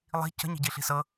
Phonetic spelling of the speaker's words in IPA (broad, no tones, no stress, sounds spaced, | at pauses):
lˠ i̤ c ə̤ ɲ i̤ ɟ i ɬ i̤ s ɤ